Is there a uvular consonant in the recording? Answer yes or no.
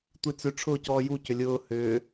no